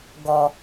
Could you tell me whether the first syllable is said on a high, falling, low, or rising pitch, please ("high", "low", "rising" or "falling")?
low